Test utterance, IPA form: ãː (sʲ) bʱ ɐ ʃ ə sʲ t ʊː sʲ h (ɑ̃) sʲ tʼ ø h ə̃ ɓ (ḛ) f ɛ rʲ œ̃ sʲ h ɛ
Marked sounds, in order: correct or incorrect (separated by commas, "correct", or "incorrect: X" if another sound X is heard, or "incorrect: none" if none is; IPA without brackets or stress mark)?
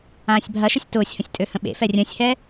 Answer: correct, incorrect: ə̃, correct